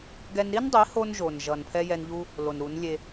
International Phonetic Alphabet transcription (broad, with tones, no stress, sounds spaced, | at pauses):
ɡ ɛ˧ n ɾ i˦ n dˤ i˨˦ h o˧ n ʒ o˨ n ʒ ʌ˨ n pʰ ɛ˧ j ɛ˧ n ʎ u˦ | l o˨ n ɾ u˨˦ n lʲ e˧